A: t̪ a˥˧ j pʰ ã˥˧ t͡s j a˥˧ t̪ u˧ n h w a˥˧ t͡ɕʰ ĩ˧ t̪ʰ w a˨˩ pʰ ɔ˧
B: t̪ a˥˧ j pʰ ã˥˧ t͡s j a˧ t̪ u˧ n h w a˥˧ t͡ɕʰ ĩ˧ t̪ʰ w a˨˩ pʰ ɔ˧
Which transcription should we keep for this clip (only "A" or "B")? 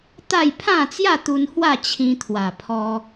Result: A